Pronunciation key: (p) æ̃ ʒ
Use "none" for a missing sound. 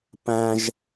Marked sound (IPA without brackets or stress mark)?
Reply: p